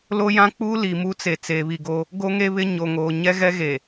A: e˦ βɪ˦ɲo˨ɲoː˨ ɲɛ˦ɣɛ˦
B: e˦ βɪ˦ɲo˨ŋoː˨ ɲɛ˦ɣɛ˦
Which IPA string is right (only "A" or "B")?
B